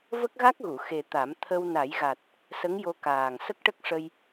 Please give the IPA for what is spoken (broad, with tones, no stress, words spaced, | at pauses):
və˦˥k̚ɣa˦˥k̚ɣu˨˩˨ xe˨˩ t̪a˨˩˦m t̪ʰə˧w na˨˩˦jɣa˨˩t̚ | sə˧˥ŋjo˧ kaː˨˩ŋ sə˦˥k̚ʈə˦˥k̚ʂə˧j